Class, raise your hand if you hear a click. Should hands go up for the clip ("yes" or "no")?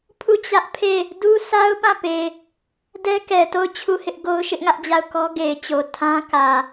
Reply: no